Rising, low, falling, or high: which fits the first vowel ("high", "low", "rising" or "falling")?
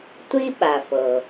high